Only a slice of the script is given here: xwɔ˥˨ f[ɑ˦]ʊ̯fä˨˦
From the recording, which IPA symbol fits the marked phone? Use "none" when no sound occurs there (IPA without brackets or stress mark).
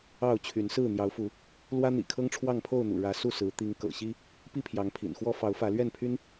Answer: ɑ˨˦